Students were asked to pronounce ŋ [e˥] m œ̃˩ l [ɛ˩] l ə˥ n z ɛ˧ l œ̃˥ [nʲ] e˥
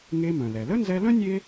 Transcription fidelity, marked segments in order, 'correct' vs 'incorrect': incorrect: e˧, correct, correct

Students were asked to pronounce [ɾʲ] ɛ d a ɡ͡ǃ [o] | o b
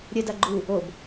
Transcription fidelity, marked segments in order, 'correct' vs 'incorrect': correct, incorrect: u

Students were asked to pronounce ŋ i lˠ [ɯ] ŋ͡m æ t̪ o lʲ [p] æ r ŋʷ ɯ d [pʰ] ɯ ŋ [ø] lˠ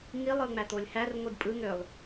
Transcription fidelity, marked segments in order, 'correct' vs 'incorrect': correct, incorrect: h, incorrect: pʼ, correct

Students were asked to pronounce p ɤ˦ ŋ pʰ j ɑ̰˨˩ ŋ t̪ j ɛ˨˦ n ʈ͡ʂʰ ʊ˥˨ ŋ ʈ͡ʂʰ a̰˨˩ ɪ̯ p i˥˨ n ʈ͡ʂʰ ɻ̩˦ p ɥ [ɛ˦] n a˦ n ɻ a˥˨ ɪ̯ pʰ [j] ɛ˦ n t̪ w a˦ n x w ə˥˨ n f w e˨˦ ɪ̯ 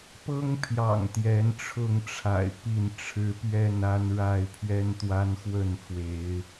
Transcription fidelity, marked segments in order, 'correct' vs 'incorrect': incorrect: ɛ˥˨, incorrect: ɥ

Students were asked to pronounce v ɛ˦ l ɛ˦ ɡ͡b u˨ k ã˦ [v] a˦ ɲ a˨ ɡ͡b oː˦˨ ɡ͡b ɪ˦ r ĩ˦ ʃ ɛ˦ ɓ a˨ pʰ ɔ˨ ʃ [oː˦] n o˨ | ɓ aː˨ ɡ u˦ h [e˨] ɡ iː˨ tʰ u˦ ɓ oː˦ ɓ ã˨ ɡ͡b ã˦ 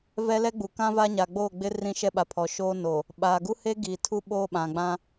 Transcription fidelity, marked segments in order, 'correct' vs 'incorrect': correct, correct, incorrect: e˦

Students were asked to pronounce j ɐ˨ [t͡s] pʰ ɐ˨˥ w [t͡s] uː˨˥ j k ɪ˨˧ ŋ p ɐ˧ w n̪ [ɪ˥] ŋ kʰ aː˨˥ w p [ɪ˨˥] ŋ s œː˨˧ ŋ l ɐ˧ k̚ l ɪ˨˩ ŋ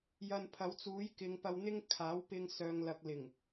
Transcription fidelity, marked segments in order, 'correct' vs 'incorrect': incorrect: n, correct, correct, incorrect: ɪ˧

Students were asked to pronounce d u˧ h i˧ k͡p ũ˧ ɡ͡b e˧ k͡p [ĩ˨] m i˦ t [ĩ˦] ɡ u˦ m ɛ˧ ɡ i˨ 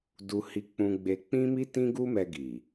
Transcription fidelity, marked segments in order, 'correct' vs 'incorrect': incorrect: ĩ˦, correct

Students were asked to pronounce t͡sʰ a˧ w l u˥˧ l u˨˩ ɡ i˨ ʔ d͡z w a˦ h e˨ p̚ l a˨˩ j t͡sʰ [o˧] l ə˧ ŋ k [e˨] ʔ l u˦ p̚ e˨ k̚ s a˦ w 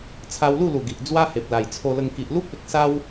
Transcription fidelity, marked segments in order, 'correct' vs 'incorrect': correct, incorrect: i˨

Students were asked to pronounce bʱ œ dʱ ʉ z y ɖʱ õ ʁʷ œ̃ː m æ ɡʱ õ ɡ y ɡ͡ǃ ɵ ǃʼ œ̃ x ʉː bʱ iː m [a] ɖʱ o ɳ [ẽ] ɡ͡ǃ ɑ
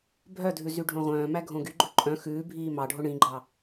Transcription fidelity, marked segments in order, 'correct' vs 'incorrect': incorrect: ɑ, incorrect: ĩ

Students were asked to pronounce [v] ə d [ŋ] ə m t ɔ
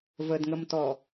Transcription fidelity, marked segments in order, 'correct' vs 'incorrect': correct, correct

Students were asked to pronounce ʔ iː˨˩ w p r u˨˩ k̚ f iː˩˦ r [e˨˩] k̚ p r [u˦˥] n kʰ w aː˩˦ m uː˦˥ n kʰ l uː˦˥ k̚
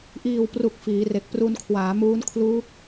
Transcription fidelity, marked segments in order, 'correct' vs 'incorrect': correct, incorrect: u˧

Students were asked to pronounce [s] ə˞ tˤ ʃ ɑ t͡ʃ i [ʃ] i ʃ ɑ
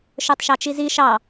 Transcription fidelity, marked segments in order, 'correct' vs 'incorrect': incorrect: ʃ, incorrect: z

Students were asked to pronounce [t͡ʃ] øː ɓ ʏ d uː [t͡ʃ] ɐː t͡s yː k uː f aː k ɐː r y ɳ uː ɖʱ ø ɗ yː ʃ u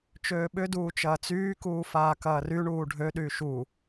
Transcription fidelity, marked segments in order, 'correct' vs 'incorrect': correct, correct

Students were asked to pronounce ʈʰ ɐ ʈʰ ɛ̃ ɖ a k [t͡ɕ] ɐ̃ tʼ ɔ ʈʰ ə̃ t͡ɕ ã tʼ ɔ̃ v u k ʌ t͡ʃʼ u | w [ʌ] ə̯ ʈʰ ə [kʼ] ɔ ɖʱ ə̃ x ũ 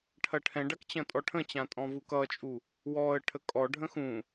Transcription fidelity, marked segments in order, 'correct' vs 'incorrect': correct, incorrect: ɔ, correct

